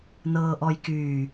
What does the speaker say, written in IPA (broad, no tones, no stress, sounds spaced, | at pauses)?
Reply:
n ɤː ʔ ɔ j k yː